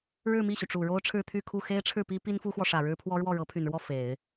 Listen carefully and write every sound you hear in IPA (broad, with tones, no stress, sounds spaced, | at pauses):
ɻ ɻ̩˥˧ m i˥˩ ɕ y˩ ʈ͡ʂ u˨˩ ɻ o˥ ʊ̯ ʈ͡ʂʰ ɻ̩˥˧ t̪ʰ y˥˧ kʰ u˥˩ x e˥ ɪ̯ ʈ͡ʂʰ ɻ̩˥˩ p i˥ p i˥ n f u˥ x w ɔ˨ ʂ ä˨˩ ɻ ɻ̩˥ pʰ w ɔ˥ ɻ w ɔ˥˩ ɻ ɤ˧˥ pʰ y˨˩ n ɻ w ɔ˥˩ f e˨˩˦ ɪ̯